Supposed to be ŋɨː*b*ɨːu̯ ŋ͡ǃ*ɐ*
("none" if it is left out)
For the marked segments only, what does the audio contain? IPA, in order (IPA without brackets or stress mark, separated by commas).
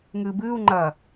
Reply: b, ɐ